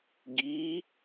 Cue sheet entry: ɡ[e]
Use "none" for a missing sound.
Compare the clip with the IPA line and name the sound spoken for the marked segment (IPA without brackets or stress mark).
i